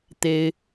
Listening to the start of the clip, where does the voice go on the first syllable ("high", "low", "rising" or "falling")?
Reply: high